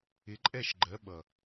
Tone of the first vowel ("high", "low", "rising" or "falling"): rising